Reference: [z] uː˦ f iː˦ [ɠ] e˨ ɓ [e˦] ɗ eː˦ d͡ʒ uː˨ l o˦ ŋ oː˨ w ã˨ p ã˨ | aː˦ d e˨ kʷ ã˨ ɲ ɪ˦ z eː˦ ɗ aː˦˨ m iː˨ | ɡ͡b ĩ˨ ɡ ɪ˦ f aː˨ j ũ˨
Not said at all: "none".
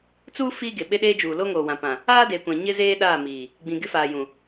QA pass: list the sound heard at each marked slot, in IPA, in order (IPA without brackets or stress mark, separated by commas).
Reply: t͡s, ɡ, e˦